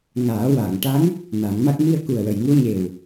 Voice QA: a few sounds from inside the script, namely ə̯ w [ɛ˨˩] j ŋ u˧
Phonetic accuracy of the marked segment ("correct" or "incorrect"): incorrect